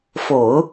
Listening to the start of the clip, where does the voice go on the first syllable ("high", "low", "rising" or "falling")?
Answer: low